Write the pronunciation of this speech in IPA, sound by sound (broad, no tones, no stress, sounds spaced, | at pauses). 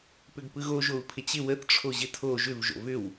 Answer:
p ʏ ɡ p ɯ ɣ o ʒ o u̯ pʰ ɪ t͡ɕ ɪ w ə θ ʈ͡ʂʰ o ʑ ɪ tʰ o ʒ ʏ v ʒ o̰ v ʏ w